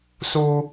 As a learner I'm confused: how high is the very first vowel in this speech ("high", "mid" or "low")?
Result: high